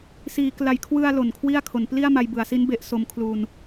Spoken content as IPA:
siː˩˦ kla˨˩jkʰwɯ˧a̯ lo˨˩nkʰwi˥˩a̯ kʰo˩˦n pli˥˩a̯ma˧jbɯ˩˦a̯si˦˥n be˦˥ʔso˧mkʰlu˧n

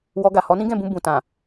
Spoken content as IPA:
wɔ˧ɡa˨ hɔ˨˦nĩ˦ɡɛ̃˦˨bũ˧ bũ˨tã˨

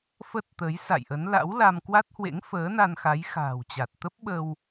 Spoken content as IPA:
fə˦˥t̚t̪ə˨˦j sa̰˧˨jʔə˨˦n la̰˧˥wla˧mkwa˦˥t̚hwḛ˧˥ŋ fəː˨˦na˧nxa˨˦j xa̤ː˨˩wt͡ɕa˨˩t̚ t̪ə˦˥p̚ɓə˧w

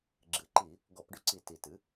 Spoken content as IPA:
ɡ͡ǁɨ˨˩ǃi˧˩˧ | ɡɔ˧˩˧pɖʏ˦˨ǀi˧˩˧ ti˨˩tɨ˩˥

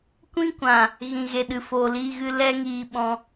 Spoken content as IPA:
kʷĩ˦kʷã˨ | ɣĩ˨ɣe˨ɗɨ˨ foː˨liː˧ɣɨ˧ lɛ˦ŋiː˧ɓɔ̃˧

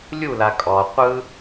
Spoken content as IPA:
lʲula kʼɔ qʷɯ

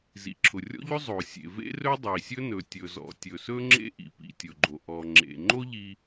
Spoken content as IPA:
zḭ˩ǁʰʊ˩rʲɔ̰˥ʎɵ˥ zˤo˩sʲḛ˩ vḛ˥rɵ˥dˤi˩sʲɵ˥ nɵ˩ tʲɵ˩zɔ̰˩tʲɵ˩sɵ˥ ŋ͡ǁḛ˥ʔḭ˩pḭ˩ tʲʊ˩ɡ͡ǃo˩ ʔɔ˩ŋ͡ǁḛ˩ŋ͡ǃo˥ ʎi˥

